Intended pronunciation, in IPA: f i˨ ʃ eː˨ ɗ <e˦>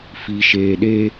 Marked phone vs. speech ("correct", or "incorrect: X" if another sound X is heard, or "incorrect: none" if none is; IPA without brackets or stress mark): correct